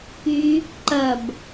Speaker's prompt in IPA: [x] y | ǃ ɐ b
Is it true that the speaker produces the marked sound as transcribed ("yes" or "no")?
no